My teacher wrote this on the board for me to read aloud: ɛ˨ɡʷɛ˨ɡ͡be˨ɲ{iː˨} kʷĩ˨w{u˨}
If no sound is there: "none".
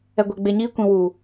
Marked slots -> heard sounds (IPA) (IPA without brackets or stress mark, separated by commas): iː˧, u˨